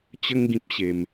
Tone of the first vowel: high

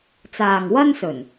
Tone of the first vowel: low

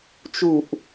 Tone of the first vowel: falling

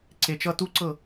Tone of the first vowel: low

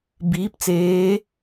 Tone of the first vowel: rising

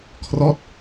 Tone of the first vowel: falling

